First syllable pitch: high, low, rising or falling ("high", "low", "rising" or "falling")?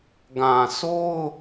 low